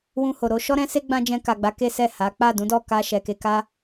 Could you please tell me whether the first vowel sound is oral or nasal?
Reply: nasal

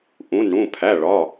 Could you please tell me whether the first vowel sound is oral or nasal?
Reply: nasal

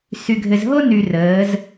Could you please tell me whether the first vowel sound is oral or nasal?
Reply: oral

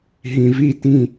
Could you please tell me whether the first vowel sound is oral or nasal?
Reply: nasal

